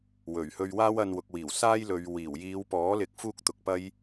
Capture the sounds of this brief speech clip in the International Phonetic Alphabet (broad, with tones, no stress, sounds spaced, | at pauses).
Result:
w ɵ˨˩ ɥ h ɵ˧ ɥ w aː˥ w ɐ˧ n w ʊ˨ k̚ w iː˨˩ w s aː˥ j l ɵ˨˧ ɥ w iː˨˩ w j iː˨˧ w p ɔː˨˥ l ɪ˨˥ k̚ f uː˥ k̚ t̪ ʊ˨ k̚ p ɐ˥ j